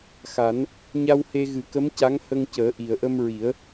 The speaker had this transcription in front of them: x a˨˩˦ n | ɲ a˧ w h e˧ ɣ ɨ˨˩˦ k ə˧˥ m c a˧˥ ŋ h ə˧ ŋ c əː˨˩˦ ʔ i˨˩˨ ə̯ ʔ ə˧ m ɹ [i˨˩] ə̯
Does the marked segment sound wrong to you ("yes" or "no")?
yes